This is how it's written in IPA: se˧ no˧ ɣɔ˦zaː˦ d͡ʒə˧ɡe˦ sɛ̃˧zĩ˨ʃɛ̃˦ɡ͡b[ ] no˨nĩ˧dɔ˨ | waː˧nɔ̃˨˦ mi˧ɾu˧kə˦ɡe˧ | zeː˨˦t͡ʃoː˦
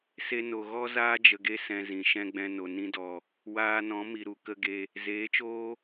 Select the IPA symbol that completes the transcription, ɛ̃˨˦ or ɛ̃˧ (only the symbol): ɛ̃˧